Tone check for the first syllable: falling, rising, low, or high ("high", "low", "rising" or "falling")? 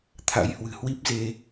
rising